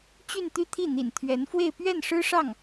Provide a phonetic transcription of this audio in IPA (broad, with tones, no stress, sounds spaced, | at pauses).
t͡ɕ y˥˧ n t̪ y˥˧ t̪ʰ i˥˩ n̪ ḭ˨˩ n t̪ʰ ɥ ɛ˧˥ n f w e˥˧ ɪ̯ p ɥ ɛ˥˩ n ʂ ɻ̩˥ ʂ ɑ˥˩ ŋ